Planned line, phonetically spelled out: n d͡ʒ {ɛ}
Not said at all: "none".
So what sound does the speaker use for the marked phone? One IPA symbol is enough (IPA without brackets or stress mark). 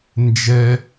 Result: ɛ